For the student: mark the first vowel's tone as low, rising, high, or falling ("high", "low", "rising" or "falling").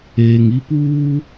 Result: low